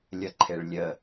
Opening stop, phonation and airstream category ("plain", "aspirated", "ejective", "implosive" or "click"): click